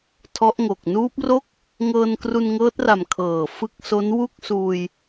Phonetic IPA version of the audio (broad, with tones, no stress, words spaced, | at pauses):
tʰɔ˦˥ʔŋo˨˩k̚ nuː˦˥p̚ro˥˩k̚ | ŋɤː˧nkru˧nŋɤː˦˥t̚ra˨˩m kʰɤː˨˩fɯ˦˥k̚so˦˥n wu˥˩k̚suː˧j